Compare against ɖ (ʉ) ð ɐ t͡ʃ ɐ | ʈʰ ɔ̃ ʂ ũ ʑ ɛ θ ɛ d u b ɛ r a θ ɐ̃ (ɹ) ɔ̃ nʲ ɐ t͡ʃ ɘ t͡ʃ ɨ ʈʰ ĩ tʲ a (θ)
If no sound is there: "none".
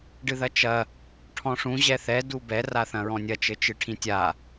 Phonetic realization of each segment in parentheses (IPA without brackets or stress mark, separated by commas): ɨ, ɹ, none